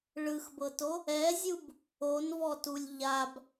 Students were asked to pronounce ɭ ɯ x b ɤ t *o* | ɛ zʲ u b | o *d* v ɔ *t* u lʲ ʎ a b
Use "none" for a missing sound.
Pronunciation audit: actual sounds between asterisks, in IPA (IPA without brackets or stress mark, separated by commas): o, n, t